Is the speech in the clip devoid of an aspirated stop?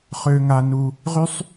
yes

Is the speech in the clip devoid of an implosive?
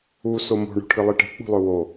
yes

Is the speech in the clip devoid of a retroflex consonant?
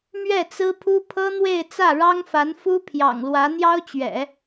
no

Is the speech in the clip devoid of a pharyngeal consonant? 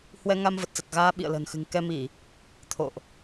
yes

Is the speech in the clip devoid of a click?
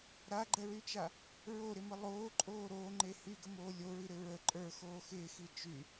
no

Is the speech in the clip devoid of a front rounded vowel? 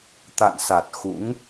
yes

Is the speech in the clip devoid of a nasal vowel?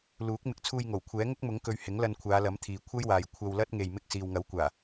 yes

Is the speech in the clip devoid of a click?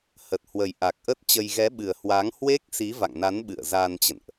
yes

